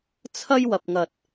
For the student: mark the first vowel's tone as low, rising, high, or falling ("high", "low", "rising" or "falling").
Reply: high